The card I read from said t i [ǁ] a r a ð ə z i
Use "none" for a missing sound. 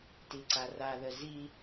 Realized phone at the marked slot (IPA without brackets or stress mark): ǀ